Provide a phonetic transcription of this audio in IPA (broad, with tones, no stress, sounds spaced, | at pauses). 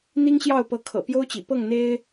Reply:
n̪ i˥ ŋ ɕ j ɑ˥˩ ʊ̯ p ɤ˧˥ kʰ ɤ̰˨˩ p j o˥ ʊ̯ t͡ɕ ḭ˨˩ p ɤ˥˩ ŋ n̪ e˥ ɪ̯